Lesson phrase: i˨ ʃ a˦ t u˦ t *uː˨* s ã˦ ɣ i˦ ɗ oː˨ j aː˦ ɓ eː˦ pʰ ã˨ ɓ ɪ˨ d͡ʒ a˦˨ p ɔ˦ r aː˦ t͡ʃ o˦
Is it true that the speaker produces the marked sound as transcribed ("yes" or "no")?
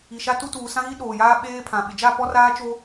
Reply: yes